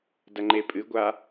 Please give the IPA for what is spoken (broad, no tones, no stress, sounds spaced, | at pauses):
d ɐ ŋ͡ǃ e pʼ ɨ ɡʷ a